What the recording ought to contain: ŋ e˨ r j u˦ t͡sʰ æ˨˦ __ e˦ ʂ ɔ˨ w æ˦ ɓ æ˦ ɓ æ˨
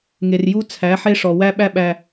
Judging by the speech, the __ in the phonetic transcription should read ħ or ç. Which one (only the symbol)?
ħ